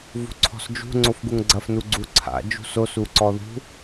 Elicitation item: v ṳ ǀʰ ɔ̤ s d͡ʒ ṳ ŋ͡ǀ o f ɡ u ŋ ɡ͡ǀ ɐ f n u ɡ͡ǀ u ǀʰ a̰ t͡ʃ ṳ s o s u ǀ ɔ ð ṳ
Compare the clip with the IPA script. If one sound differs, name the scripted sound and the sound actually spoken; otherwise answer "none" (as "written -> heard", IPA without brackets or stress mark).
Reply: t͡ʃ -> d͡ʒ